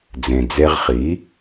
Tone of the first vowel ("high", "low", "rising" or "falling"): low